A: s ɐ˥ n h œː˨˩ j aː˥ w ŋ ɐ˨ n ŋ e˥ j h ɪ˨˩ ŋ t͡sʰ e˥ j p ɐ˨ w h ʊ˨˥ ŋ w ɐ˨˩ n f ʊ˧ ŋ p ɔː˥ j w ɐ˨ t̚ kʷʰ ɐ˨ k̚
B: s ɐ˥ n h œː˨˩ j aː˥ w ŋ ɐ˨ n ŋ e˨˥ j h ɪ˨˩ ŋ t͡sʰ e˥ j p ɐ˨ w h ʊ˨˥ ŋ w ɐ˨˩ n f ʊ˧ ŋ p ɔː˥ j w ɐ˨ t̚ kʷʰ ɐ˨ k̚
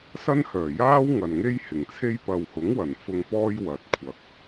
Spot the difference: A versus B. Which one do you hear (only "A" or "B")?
A